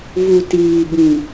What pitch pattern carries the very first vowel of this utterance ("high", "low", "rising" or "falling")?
low